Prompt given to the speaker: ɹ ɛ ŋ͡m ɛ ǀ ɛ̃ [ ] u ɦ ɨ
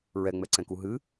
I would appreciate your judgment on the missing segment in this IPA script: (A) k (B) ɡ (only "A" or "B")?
A